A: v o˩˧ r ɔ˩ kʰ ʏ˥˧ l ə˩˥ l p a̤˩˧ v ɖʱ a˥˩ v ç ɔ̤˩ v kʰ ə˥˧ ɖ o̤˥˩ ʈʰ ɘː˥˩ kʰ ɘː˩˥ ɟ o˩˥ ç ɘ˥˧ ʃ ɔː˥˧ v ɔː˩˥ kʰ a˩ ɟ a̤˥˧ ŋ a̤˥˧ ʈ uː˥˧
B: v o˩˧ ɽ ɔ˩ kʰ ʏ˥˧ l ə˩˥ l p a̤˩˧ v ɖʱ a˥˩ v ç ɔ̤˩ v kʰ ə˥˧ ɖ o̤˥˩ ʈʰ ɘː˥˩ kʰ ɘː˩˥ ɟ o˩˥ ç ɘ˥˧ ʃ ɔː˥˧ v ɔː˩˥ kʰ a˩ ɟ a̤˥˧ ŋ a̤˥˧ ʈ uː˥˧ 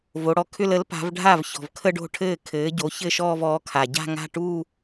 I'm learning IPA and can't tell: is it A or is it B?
B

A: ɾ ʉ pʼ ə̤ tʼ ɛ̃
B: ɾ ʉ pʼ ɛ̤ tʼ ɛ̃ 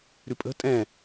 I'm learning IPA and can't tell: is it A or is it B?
A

